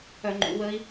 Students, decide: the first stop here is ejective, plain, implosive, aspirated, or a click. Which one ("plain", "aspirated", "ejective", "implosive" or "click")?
click